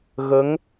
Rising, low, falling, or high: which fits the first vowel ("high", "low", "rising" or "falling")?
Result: rising